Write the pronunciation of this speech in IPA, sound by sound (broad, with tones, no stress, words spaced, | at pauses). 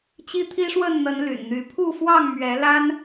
t͡ɕi˦t̪ʰi˦ʂwə˥˨nn̪ə˨˦n ly̰˨˩nn̪y˨˦ pʰu˥˨fwɑ˥˨ŋ mɥɛ˨˦la˦n